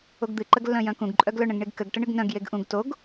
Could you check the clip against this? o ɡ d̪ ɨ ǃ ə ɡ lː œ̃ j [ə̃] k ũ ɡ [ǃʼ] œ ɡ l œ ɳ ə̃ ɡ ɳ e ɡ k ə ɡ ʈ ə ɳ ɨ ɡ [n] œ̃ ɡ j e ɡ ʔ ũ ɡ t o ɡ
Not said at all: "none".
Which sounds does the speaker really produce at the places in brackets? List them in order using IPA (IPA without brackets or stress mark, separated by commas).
œ̃, ǃʼ, n